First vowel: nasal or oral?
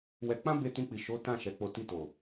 oral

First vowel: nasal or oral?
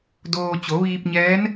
oral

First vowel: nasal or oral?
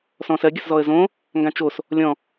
nasal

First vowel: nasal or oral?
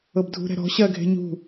oral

